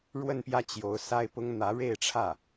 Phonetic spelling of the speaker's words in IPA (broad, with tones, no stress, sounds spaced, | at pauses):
ɻ w ə˥˧ n p j ä˥˩ t͡ɕ j o˧˥ ʊ̯ s a˥ ɪ̯ p ʊ˥ ŋ n̪ ä˧˥ ɻ e˥˧ ɪ̯ ʈ͡ʂʰ ä˥˩